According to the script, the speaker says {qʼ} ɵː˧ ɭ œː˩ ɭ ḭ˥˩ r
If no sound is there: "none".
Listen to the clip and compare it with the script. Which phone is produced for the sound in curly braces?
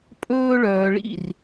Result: pʼ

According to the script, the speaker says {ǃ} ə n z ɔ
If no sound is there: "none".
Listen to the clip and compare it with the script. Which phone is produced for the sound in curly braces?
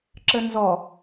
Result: ǁ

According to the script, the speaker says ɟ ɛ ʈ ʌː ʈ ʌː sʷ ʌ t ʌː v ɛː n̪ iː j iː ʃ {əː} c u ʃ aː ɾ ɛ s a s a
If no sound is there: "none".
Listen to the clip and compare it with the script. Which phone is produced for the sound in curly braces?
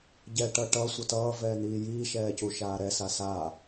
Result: ɛː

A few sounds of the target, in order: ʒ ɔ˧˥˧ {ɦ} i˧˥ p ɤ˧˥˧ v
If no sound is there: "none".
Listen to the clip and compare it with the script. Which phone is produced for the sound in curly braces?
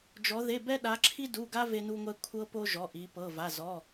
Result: ʔ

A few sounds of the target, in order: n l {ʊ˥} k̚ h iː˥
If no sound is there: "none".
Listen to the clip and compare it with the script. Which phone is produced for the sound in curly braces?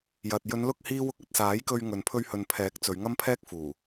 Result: ʊ˧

